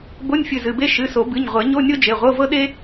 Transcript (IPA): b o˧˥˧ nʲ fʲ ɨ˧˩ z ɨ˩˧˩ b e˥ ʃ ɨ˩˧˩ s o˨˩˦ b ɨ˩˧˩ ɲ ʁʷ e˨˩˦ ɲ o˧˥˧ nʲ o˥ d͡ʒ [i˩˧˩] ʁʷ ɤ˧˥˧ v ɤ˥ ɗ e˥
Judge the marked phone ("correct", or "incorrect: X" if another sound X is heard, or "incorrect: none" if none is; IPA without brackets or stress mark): incorrect: e˩˧˩